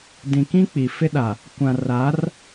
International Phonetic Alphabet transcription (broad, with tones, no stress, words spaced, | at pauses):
dĩ˨kĩ˦ k͡pi˨fɪ˦ɗa˨ | kʷã˨ra˨˦r